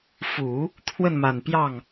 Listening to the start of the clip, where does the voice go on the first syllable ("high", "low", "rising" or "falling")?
low